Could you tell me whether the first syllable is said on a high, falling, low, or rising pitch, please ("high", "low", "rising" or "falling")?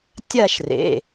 falling